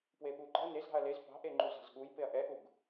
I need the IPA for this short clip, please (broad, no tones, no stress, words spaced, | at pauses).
pweɓuɡ͡ǃɑ̤ɐ̯ nezɾɑ̤ɐ̯ lez pɑ̤ʔeŋ͡ǃuzɑ̤z ɠuj peɐ̯ʔɛʔuɡ